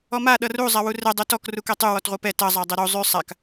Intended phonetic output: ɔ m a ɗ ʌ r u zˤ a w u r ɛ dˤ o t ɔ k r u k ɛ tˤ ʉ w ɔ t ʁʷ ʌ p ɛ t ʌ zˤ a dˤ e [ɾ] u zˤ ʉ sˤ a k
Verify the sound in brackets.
correct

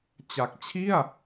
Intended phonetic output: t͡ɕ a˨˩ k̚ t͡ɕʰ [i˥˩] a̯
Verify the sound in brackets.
correct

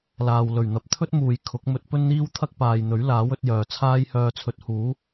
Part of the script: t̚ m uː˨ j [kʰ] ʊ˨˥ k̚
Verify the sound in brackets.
correct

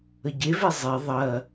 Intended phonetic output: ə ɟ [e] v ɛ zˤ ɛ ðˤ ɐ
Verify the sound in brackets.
correct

